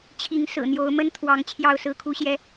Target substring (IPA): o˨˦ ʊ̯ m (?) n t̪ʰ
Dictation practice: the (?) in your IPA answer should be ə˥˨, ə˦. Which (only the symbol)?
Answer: ə˦